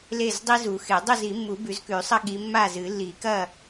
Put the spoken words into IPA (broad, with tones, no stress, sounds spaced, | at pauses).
l e˥˨ z dˤ i˥ z u˨˩˦ x e˨˩˦ dˤ ɵ˥˨ z i˨˩˦ mː u˨˩˦ b ʉ˨˦ z k ʉ˨˩˦ sˤ ɐ˥ ɠ i˨˦ mː a˥˨ z ɨ˨˩˦ lː i˨˩˦ k ɐ˥˨